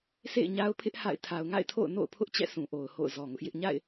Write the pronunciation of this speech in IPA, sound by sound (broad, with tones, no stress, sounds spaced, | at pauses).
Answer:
sʰ ḛ˦˨ ɪ̯ ɲ a˦ ʊ̯ pʰ ɪ˦ ʔ h a̰˦˨ ɪ̯ tʰ a˨ ʊ̯ ŋ a̰˦˨ ɪ̯ tʰ o̰˦˨ ʊ̯ n o̰˦˨ ʊ̯ pʰ ʊ˦ ʔ t͡ɕ ɛ̰˦˨ sʰ ũ˨ ʔ o˨ ʊ̯ h o̰˦˨ ʊ̯ z ɔ˨ ŋ ʊ˦ ʔ j ɪ˦ ʔ ɲ a̰˦˨ ɪ̯